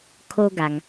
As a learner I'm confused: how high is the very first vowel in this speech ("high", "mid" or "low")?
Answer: mid